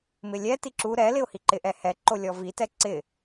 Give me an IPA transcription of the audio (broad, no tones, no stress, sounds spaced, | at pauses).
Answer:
m ɪ lʲ ɛ t i ǁ u ɾ ɛ l ɪ ʊ̯ h i ǃ ɪ ʔ ɛ h ɛ ǃ o lʲ ɔ v i t ɛ ǀ ɪ